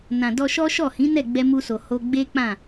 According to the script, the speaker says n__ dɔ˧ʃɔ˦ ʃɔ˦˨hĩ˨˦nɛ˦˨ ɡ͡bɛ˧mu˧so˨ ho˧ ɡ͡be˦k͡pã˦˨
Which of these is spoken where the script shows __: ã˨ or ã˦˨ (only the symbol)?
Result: ã˨